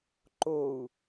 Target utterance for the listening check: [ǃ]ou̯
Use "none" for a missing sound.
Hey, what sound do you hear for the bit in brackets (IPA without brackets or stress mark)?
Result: ǃ